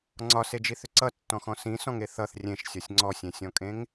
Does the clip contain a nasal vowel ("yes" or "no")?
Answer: yes